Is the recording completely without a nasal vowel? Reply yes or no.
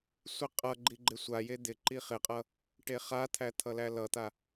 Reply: yes